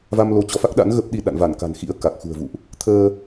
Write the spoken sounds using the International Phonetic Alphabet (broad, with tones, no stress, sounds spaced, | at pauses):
v a˧ m l o˨˦ t͡ɕ ɔ˨˦ f a˦˥ k̚ ɗ a̰˧˥ n ɣ ə˦˥ p̚ ɗ i˧ ɗ a̰˧˨ n v a˧˩ n k a̤˨˩ n x ḭ˧˥ ə̯ k a˨˩ k̚ x ṳ˨˩ ə̯ v ṵ˧˨ ʔ | t̪ʰ əː˧